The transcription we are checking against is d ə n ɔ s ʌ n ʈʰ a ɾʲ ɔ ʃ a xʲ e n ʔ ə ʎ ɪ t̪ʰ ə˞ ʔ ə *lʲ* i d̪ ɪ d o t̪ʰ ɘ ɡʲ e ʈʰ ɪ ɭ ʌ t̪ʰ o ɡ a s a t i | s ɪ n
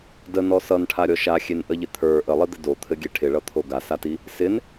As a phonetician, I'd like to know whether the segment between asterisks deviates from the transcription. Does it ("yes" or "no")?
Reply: yes